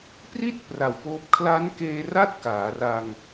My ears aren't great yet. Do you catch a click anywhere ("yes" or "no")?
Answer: no